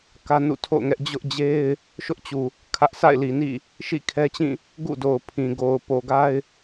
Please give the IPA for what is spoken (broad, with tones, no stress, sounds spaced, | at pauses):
k ä˦ n ṵ˦˨ tʰ o̰˦˨ ʊ̯ ŋ ɛ˦ ʔ d͡ʑ ʊ˦ ʔ d͡ʑ e˦ ɪ̯ | ʃ ʊ˦ ʔ t͡ɕ u˨ | kʰ ä˦ ʔ s a̰˦˨ ɪ̯ l i˨ n ḭ˦˨ | ʃ ḭ˦˨ kʰ ɛ˦ t͡ɕ ĩ˦˨ | ɡ ṵ˦˨ d o˨ ʊ̯ pʰ ĩ˨ ɡ o˨ ʊ̯ p o˨ ɡ a˦ ɪ̯